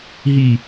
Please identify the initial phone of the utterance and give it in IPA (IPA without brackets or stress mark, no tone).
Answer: ɦ